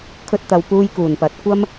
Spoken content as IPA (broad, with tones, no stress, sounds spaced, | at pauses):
kʰ ɵ˧ t̚ t̪ ɐ˨ w p uː˧ j k uː˨˩ n p ɐ˨˥ t̚ kʷ ɐ˥ m